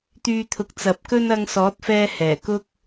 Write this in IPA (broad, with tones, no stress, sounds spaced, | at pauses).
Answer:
t̪ yː˧ t̪ʰ ʊ˨˥ k̚ t͡s ɐ˨˥ p̚ k ɵ˥ n ɐ˧ ŋ s ɔː˨˥ t̚ f ɛː˧ h ɛː˨˩ k ʊ˥ k̚